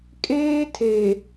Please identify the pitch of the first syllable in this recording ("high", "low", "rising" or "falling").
high